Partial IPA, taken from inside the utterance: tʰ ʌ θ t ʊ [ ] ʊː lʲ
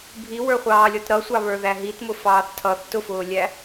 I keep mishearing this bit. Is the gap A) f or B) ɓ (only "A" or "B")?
A